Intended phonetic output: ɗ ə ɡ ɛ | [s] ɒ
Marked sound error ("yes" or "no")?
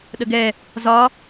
yes